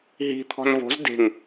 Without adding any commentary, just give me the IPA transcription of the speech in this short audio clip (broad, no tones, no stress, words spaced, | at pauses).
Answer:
ɦi̤ t̪ʰɔ̤nvo̤z de̤ŋ